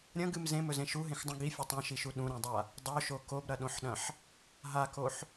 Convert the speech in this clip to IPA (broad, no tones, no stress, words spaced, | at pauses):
ɾʲɐ̃ɡɨm zẽmɵzẽ ʃuɦẽxdˤũ ɡifʲɵ tˤõʃiʃu ɗũɾẽdˤa | dˤoʃo kobɾɐɗõħɗɐ̃ħ | ɦakoħ